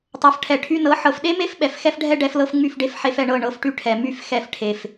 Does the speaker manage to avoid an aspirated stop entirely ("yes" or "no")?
no